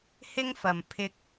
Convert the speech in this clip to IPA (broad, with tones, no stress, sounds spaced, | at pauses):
h ɪ˥ ŋ f ɐ˨ m pʰ ɪ˧ k̚